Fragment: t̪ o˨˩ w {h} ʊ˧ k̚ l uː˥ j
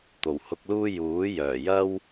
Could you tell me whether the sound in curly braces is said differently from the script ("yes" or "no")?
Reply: no